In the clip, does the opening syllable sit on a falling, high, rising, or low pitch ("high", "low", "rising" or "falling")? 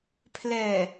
low